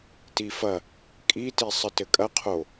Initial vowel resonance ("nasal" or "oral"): oral